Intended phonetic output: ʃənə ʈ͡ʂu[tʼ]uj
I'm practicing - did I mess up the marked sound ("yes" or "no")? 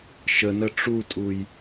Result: no